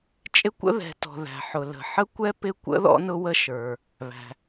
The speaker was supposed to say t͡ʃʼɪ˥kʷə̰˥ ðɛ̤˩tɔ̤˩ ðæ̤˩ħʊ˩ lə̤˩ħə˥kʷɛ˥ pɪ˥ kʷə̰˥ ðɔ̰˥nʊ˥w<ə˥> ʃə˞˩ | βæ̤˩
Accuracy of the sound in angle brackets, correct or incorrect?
correct